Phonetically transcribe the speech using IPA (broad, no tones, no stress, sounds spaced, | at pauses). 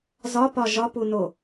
z ɒ p ɒ ʒ ɒ p u n o